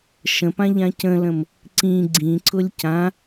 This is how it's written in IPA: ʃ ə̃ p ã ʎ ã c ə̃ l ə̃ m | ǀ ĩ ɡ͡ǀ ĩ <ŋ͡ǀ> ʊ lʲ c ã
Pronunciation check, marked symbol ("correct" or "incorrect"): incorrect